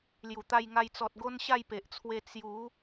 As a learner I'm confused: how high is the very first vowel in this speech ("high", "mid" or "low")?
high